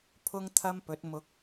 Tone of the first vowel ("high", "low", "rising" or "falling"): high